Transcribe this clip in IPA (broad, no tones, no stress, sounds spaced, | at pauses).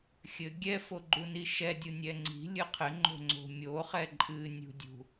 xʲ ɘ ɡʲ ɛ f o ɡ͡ǃ u n i ʃ ɛ dʲ u nʲ ɛ ŋ͡ǀ i̤ lʲ ɨ qʰ ɘ ŋ͡ǃ o̤ ŋ͡ǀ o̤ mʲ o χ ɛ ǃʼ ɨ nʲ ṳ dʲ ṳ